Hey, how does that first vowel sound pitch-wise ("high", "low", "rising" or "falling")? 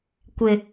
low